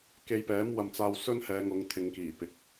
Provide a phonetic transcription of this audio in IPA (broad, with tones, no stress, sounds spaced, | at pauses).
k e˧ j p ɛː˨˥ m w ɐ˧ m t͡s aː˧ w s ɵ˥ n h ɛː˨˧ ŋ ʊ˨˧ ŋ t̪ʰ ɪ˨˧ ŋ k iː˨˩ p ɪ˨ k̚